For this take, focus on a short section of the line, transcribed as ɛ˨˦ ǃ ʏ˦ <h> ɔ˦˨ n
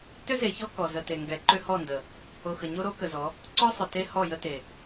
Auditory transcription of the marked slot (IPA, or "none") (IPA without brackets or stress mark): h